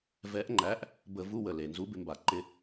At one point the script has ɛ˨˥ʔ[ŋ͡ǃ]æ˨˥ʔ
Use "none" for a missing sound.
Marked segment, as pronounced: ŋ͡ǃ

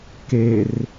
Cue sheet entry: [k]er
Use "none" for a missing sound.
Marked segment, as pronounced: k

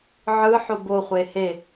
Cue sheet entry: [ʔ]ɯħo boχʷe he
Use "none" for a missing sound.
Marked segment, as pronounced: ʕ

